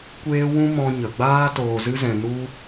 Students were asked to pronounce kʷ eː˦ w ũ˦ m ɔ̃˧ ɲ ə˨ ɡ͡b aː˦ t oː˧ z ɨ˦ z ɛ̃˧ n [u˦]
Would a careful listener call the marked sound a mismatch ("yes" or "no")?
no